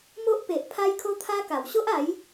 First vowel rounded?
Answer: yes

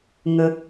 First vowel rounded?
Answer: no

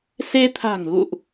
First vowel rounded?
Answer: no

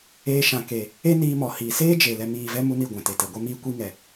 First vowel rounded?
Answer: no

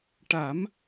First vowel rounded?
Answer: no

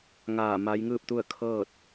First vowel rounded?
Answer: no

